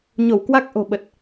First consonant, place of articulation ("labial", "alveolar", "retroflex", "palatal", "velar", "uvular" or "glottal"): palatal